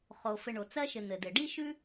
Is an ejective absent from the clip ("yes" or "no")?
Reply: yes